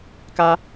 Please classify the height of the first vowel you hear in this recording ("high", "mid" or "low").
low